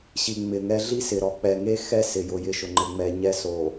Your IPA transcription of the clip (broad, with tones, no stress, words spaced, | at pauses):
ɕi˨ŋ͡mɪ˨ŋɛ˦ ɮi˦sɪ˨ɾɔ˨ k͡pɛ˨ŋe˦ xɛ˦ sɪ˨jʊ˨jɪ˨˦ʃʊ˨ ŋ͡ǃɪ˨ŋ͡mɛ˨ ɲɛ˦so˨